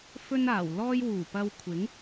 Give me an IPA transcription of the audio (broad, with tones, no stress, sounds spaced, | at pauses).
f ɵ˥ n aː˨˩ w l ɔː˥ j w uː˨˩ p ɐ˧ w kʷʰ ɪ˨˥ ŋ